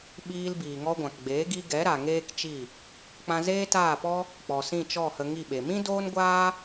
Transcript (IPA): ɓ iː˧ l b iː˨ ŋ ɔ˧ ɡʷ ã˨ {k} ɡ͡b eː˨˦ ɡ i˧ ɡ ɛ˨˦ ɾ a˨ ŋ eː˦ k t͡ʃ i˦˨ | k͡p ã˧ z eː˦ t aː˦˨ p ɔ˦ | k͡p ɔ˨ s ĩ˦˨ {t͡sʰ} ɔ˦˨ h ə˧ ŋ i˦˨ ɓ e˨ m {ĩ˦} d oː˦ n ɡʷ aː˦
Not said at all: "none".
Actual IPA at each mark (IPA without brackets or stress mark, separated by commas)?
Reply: k, t͡ʃ, ĩ˦